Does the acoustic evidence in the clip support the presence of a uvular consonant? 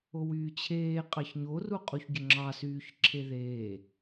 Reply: yes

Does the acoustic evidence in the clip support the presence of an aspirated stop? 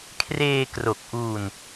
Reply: yes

